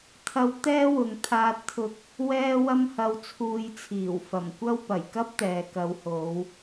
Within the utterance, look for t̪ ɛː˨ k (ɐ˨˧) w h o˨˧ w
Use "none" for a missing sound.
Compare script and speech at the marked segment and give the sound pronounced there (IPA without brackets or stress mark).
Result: ɐ˨˧